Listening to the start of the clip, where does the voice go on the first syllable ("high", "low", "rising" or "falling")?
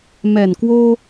low